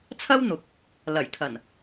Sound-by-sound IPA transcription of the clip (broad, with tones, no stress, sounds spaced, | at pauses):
t͡sʰ ɐ˥ w n̪ ʊ˨˥ k̚ | l ɐ˨˩ j kʰ ɐ˨˩ n